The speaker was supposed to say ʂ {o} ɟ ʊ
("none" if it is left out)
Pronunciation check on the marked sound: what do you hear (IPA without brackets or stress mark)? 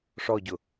ɔ